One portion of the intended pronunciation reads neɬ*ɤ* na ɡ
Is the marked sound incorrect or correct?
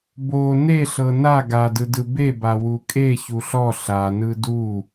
correct